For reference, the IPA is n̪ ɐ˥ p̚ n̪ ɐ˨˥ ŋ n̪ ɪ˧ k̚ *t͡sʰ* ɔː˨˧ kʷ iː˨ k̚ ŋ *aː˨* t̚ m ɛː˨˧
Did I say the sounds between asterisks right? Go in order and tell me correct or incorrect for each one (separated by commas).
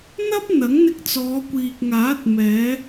incorrect, incorrect